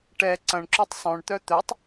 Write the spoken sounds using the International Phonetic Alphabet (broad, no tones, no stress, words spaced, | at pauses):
ʈɛ ǀɐ̃ɳ ǁytˤsˤœ̃ɳ t̪œt̪œtˤ